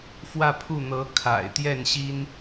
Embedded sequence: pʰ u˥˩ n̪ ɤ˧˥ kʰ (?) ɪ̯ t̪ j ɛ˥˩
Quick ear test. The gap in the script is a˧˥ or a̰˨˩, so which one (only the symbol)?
a̰˨˩